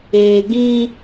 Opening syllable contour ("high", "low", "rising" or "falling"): low